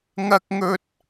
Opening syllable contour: high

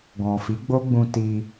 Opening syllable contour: low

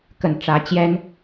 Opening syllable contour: low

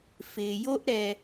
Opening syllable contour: low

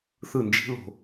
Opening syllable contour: falling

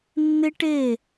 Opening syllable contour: high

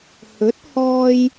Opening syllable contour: rising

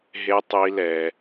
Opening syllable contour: high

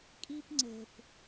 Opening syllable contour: high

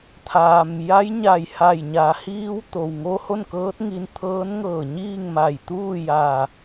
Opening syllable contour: low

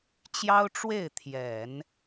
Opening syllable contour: high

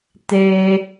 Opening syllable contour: high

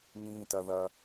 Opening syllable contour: high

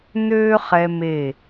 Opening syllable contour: high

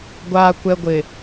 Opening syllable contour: high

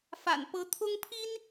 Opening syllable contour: low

